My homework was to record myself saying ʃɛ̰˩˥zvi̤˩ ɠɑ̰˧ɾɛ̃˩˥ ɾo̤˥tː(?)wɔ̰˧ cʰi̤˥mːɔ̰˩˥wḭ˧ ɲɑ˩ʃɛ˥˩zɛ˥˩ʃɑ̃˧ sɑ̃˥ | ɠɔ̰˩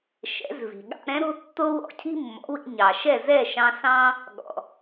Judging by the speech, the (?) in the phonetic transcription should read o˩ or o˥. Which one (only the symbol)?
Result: o˥